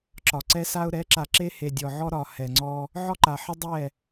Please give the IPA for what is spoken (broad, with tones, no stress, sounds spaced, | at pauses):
ǁ ɒ˨ ǀ ɛ˦ s a˦ ʊ̯ ɾ ɛ˨˦ ǁ a˨ ǁ e˦ h e˨ dʲ ɔ˨ ʕ ɔ˦ ɾ ɒ˨ h ɛ˨ ŋ͡ǀ ɔ˦ | ʕ ɒ˦ ǃ a˨ ħ ə˦ dˤ ɛ˦˨